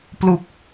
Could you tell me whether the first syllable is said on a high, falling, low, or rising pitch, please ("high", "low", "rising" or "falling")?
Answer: low